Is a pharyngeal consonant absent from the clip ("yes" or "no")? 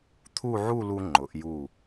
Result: no